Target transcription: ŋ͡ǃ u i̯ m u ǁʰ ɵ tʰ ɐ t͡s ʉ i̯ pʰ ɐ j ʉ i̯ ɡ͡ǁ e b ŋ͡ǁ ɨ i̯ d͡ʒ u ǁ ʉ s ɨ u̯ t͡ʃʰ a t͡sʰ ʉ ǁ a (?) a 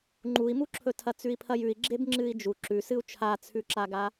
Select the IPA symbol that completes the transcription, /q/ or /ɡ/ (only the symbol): ɡ